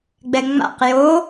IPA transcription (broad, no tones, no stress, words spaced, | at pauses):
ɡ͡bɛŋ͡ma̰q jo